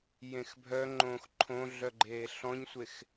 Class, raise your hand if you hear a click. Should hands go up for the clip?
yes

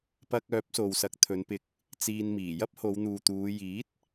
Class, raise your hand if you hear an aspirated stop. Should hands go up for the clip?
yes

